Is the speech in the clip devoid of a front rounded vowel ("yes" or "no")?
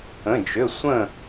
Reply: no